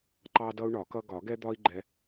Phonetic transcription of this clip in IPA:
ǃ ɑ˦ d ʌ˦ u̯ ɳ ɒ˨˩˦ k ʌ˦ ɡ ɒ˨˩˦ ɡ ɛ˦ d̪ ɒ˦ i̯ ɡ͡ǃ ɛ˦

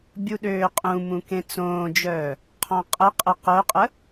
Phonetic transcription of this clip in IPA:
bʲ u ɗ øː qʼ ũ m ũ k ẽ t͡s õː d͡ʒ œː | qʰ ɔ̃ qʼ ə qʼ ə q œ qʼ ə

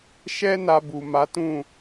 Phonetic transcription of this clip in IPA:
ʃ ɛ˦ n a˧ b u˨ m a˨˦ t ũ˦˨

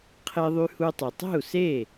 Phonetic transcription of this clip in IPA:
qʰ e˧ ðˤ y˧ h u˧ tˤ y˩ tˤ e̤˥˩ u̯ s e˥˩

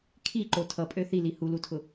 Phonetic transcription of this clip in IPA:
kʰ i ǃ o tʰ ʌ pʼ ø θ i l i h u l u tʰ ʊ

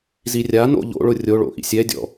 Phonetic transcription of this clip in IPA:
z i rʲ a n o̰ ʎ o̰ ɭ ʊ rʲ o ɭ o̰ ʔ ḭ sʲ ɛ dʲ ɔ̰

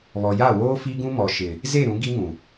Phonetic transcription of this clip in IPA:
β ɔ˨ j a˦˨ w oː˦ f i˦ ɡ ũ˦ m ɔ˨ ʃ ɪ˨ | z e˦˨ ɾ ũ˨˦ ɡ i˦ ŋ ũ˨

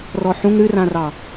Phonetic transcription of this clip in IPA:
r ɔ ħ ũ ŋ ɾ ʉ r ã r ɑ

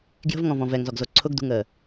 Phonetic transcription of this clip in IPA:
ɡ j ə̤ v ŋ ɔ̃ v ɔ̃ v ɛ ŋ z ɔ ɡ z o ǀʰ ʊ ɡ d ṳ ŋ əː

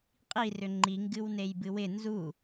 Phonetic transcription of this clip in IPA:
qʼ i r ʏ ŋ͡ǃ i ŋ ɡ ɨ w n e j b ɨ w ɪ n z u

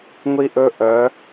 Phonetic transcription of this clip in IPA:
ŋʷ i˧ ʔ ɵ˧ ʔ œ˩˧

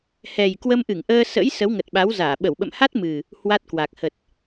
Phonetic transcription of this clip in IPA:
h ɛ˨˩ j k w ə˧ m ʔ ɨ˧˩ ŋ ʔ əː˧ s ə̰˧˥ j s ə˨˦ w ŋ ə˨˩ t̚ ɓ a˨˦ w z aː˧˩ ɓ ə˧˩ w ɓ ə̰˧˨ m h a˦˥ t̚ m ɨ˨˩ | h w a˦˥ t̚ k w a˨˩ k̚ h ə˨˩ t̚

